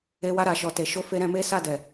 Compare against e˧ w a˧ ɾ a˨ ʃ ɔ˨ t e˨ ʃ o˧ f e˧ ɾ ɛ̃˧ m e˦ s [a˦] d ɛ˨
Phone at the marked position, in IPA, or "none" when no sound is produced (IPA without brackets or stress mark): a˦˨